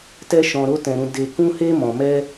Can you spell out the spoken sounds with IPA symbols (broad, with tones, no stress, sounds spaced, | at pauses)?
t ɛ˦ ʃ ɔ̃˧ ɾ o˦ t ɛ̃˧ ɾ ũ˧ d e˧ k ũ˦ h e˦ m ɔ̃˧ m ɛ˦